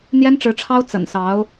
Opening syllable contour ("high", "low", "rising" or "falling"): high